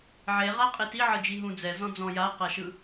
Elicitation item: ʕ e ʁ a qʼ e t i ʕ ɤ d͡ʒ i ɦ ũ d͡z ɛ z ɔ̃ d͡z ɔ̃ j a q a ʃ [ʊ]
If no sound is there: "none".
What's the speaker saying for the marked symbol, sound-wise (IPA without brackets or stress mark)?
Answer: ɯ